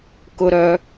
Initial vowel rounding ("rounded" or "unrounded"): rounded